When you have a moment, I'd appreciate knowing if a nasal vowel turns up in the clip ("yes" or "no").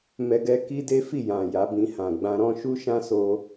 yes